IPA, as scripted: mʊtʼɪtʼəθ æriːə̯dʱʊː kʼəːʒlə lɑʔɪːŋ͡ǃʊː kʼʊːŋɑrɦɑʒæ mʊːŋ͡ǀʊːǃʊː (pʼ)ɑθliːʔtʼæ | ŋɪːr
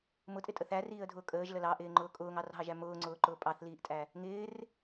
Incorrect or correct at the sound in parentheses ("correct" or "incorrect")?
correct